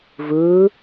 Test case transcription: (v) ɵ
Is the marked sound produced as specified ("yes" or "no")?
yes